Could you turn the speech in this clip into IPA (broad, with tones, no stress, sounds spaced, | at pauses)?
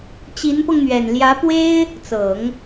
t͡ɕ i˧˥ n p ɤ˧ ŋ n̪ ɥ ɛ˨˩ n l j ä˧˥ p w e˥ ɪ̯ | t͡s ɤ˨˩˦ ŋ